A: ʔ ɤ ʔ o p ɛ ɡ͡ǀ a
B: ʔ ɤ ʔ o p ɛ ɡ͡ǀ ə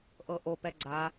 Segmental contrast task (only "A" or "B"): A